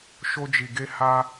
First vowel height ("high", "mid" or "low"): mid